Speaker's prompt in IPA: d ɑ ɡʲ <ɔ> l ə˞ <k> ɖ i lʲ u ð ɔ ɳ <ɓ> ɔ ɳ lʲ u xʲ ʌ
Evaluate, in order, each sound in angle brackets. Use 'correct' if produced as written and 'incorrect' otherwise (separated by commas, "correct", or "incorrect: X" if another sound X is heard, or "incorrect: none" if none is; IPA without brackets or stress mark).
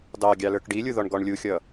incorrect: ɑ, correct, incorrect: ɡ